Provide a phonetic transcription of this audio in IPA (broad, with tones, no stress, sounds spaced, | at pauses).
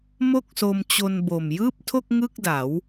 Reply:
m o˥˩ k̚ s o˧ m t͡ɕ o˧ n b o˨˩ m j ɯː˥˩ p̚ tʰ o˥˩ k̚ ŋ ɯ˥˩ k̚ d a˩˦ w